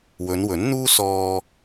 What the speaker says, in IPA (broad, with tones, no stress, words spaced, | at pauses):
wɵ˨˧nwɵ˨˥nn̪uː˥ sɔː˧